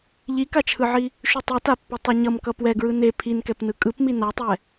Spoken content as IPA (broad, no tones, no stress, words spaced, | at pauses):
ʎikat͡ʃʰɯʕi | ʃutˤitapːi tˤeɲʌmkʌ pwɛɡɹɯ ne pʰinkɛpnɯ kʼɯpmi natˤɛ